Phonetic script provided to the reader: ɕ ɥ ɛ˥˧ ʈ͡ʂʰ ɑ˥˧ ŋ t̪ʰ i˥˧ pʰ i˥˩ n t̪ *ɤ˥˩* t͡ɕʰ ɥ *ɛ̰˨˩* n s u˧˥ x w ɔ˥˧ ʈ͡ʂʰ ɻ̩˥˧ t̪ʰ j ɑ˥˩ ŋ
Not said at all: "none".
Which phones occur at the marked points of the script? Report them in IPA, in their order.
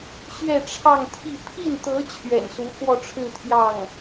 ɤ˧˥, ɛ̰˨˩

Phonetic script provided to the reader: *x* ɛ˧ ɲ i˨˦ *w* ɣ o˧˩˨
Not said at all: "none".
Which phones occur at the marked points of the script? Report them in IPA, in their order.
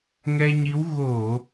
ŋ, w

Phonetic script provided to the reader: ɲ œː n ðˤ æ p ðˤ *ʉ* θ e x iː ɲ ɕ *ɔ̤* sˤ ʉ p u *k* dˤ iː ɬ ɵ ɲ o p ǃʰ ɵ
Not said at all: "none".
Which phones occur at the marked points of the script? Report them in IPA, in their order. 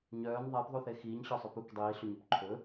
u, ɔ, k

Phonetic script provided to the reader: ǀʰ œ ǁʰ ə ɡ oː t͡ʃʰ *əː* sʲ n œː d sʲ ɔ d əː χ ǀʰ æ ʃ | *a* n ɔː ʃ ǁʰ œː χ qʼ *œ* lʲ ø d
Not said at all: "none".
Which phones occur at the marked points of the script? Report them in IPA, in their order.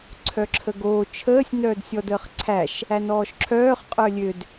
əː, æ, œ

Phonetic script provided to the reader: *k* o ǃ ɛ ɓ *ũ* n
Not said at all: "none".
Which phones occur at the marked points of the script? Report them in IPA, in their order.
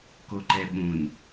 k, ũ

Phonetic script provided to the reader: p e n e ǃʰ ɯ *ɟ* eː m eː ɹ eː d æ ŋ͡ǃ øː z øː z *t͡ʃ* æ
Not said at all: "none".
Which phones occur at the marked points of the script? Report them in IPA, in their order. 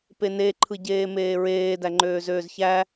ɟ, ç

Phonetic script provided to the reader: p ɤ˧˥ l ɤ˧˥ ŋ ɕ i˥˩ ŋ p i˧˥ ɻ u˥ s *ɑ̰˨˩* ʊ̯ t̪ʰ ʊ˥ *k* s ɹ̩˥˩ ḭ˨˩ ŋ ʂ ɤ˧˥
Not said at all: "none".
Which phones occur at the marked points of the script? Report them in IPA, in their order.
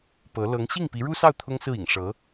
ɑ˥˩, ŋ

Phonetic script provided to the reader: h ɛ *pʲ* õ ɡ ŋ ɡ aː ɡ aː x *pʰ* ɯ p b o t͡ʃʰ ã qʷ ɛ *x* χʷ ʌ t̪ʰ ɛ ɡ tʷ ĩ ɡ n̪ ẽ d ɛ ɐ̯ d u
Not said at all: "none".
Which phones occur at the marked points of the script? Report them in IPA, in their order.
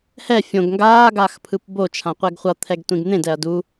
fʲ, pʰ, ɡ

